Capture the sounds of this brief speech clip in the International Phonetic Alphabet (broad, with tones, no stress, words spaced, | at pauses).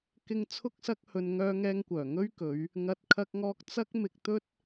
kɪ˧ŋ t͡sʰʊ˥k̚sɐ˥k̚hɵ˧n ŋœː˧ŋɛː˧ŋkʷœː˨˩ ŋɵ˥ɥkɵ˨˧ɥ | ŋɐ˨t̚ kʰɐ˧k̚ŋɔː˧k̚ t͡sɐ˥k̚mɪ˧k̚t̪ɵ˥t̚